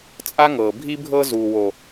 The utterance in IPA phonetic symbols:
t͡sʼ a˦ ŋ ɤː˨ bʱ i˦ bʱ ɤ˦ z uː˨ w o˨

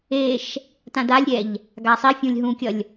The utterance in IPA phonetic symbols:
e ʃ | t ã d a lʲ ɾʲ ɛ ʎ | ɡ a sˤ i fʲ ũ lʲ ɦ ũ kʲ ʌ lʲ

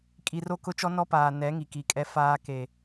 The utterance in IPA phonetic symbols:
kʼ i˨ r o˦˨ k ʊ˦ t͡ʃ ɔ˦ n ɔ˦ p aː˨ n ɛ˨˦ ŋ i˨ k i˨ kʼ ɛ˦ f aː˦ k e˨

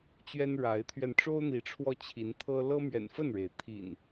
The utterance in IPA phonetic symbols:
t͡ɕ ɥ ɛ˦ n ɻ a˨˦ ɪ̯ t̪ʰ ɥ ɛ˧ n ʈ͡ʂ o˦ ʊ̯ n̪ i˨˦ ʈ͡ʂʰ w ɔ˧ t͡ɕʰ i˨˦ n t̪ʰ ɤ˦ l ɤ˦ m ɥ ɛ̰˨˩ n f ə˥˨ n ɻ e˩ ɪ̯ t̪ʰ ḭ˨˩ n

